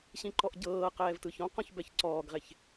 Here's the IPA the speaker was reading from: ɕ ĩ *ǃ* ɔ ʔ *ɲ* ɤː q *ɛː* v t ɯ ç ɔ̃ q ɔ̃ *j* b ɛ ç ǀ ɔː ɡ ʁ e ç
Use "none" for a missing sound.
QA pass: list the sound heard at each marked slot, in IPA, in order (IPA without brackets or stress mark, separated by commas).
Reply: ǃ, ɟ, ɛː, ç